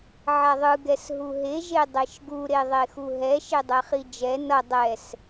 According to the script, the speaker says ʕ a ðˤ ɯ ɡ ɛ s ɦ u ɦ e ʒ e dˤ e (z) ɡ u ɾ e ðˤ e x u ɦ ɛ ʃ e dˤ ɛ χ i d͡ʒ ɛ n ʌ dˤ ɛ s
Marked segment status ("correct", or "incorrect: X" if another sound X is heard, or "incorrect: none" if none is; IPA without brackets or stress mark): incorrect: ʃ